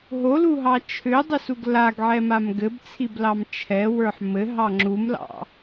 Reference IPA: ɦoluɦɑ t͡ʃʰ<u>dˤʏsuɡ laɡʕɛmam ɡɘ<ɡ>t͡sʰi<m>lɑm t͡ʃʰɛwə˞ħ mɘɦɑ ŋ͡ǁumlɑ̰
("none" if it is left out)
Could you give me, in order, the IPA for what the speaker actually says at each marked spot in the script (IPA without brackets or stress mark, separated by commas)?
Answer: ʏ, b, b